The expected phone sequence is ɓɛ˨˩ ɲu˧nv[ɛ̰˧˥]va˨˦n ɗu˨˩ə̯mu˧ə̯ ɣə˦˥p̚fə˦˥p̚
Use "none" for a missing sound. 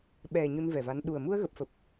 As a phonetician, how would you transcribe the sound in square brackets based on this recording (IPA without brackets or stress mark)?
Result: ɛ˨˩